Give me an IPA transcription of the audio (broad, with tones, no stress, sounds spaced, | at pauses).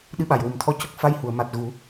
ɗ ɨ˧˥ ɓ a˨˩ j w u˨˩ m t̪ʰ ɔ˧˥ c ə˦˥ k̚ f a˧˥ j h u˨˩˨ ə̯ m a˨˩ t̚ ɣ u˨˩˦